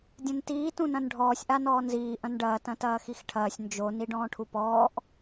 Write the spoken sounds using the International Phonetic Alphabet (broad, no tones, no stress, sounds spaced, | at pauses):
dʲ ɐ̃ n t iː t ũ n ɐ̃ n ɖʱ ɔː sʲ ʔ a n ɔː n z iː ʔ ɐ̃ n ɖ ɐː t ɐ̃ t ɐː x i x ʈʰ ɐː sʲ n d͡ʒ o n i ɖ ɔ̃ː ʈʰ u p ɔː ʔ